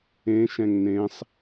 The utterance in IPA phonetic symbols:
ẽ ʃ ɛ̃ ŋ n ẽ sˤ

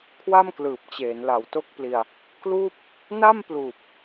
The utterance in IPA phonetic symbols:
kʰ w a˥˩ m k l ɯː˨˩ p̚ t͡ɕ eː˩˦ n l a˨˩ w t o˦˥ k̚ p l i˧ a̯ | k l uː˥˩ p̚ | n a˥˩ m p l uː˨˩ p̚

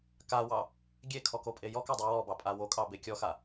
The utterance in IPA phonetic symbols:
k a w ɑ | ɡʲ e kʰ ɔ k o pʼ e j ɔ k ɑ dˤ ʉ w ɔ b ɑ pʼ a w o kʼ ɑ b e kʲ ɔ x a

